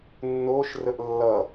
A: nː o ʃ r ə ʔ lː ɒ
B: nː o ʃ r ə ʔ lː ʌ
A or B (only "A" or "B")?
B